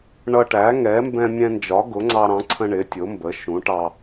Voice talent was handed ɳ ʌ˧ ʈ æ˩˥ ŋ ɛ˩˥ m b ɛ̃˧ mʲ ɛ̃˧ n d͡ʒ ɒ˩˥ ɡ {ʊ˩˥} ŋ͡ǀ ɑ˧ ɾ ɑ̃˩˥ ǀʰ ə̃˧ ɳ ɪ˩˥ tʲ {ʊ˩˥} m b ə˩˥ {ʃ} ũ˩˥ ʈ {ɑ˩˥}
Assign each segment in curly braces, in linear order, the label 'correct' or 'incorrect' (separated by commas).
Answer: correct, correct, correct, incorrect